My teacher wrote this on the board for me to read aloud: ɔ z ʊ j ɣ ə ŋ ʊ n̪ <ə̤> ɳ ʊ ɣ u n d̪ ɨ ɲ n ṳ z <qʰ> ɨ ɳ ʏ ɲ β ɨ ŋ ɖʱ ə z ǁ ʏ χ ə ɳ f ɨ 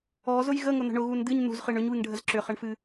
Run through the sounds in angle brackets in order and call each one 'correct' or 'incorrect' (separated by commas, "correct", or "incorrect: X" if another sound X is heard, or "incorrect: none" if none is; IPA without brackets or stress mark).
correct, incorrect: χ